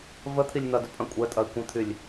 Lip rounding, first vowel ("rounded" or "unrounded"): unrounded